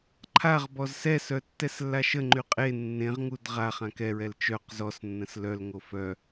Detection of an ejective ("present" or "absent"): present